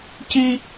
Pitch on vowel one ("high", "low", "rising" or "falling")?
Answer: high